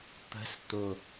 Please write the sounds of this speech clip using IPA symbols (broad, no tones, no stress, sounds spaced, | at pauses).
t̪ ə̤ s t̪ ʊ